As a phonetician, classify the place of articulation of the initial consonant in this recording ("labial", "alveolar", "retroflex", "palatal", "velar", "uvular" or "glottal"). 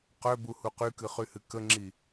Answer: uvular